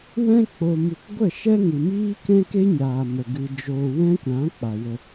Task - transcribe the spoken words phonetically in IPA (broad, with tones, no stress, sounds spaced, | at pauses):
w ɛ̃˦ k͡p o˧ m u˧ k ɡʷ ə˦˨ ʃ ɛ˦ ŋ ɨ˨ m iː˦ k ɛ̃˦ k e˦ ɲ aː˨ m ə˨ ɡ ɨ˧ d͡ʒ oː˧ w ɛ̃˦ kʷ ã˨˦ k͡p a˨ w ə˧